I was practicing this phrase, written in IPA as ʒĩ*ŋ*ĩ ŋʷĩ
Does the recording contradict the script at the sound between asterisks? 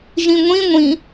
yes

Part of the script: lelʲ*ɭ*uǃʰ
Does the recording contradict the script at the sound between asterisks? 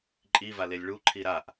no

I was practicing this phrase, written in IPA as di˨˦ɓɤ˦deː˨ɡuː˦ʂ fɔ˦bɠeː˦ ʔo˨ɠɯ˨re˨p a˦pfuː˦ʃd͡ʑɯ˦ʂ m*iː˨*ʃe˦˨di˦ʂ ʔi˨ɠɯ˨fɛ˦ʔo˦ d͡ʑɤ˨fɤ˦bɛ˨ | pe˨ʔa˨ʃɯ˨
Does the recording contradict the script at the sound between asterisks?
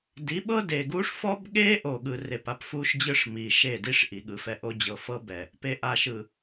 no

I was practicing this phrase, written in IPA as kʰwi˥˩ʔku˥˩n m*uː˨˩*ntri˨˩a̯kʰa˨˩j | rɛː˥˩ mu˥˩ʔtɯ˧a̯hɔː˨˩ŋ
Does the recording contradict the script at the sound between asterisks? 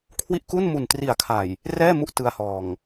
yes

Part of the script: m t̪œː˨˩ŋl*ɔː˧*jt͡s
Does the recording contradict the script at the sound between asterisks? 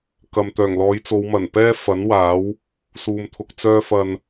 yes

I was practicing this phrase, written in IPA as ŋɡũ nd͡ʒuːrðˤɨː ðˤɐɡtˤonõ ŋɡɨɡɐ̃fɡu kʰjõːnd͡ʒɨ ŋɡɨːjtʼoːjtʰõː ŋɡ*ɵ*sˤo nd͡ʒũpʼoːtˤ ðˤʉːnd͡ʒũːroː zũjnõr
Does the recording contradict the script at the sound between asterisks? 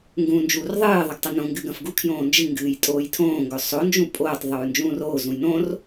no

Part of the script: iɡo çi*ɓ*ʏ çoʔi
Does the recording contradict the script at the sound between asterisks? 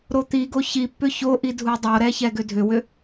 yes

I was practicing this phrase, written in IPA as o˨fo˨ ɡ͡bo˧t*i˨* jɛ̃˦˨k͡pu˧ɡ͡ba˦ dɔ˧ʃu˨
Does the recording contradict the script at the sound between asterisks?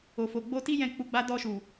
yes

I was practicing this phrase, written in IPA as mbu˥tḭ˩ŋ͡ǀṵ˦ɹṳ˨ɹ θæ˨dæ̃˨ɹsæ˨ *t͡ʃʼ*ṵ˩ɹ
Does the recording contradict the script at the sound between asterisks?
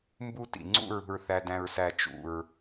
yes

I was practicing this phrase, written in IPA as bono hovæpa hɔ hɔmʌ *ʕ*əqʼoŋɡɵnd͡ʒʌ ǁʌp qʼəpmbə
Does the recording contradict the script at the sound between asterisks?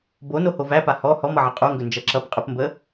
no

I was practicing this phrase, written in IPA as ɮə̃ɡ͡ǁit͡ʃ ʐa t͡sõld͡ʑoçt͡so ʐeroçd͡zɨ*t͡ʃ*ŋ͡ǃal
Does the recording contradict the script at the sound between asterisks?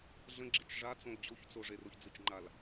no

